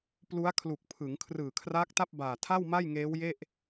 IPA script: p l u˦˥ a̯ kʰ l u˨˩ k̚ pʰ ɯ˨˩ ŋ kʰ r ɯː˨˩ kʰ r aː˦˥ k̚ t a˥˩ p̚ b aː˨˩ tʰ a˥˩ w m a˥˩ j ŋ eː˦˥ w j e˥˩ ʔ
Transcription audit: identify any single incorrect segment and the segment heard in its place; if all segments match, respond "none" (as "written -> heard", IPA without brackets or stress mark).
ɯ˨˩ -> ɯ˩˦